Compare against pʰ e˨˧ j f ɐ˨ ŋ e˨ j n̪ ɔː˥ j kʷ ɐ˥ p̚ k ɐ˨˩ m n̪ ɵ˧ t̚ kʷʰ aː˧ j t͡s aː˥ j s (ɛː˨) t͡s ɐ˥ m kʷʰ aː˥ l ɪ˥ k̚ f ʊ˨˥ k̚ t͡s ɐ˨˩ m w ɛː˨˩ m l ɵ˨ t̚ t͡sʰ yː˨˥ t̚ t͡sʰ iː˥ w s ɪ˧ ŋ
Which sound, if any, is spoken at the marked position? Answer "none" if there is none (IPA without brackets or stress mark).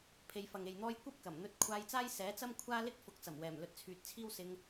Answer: ɛː˨˥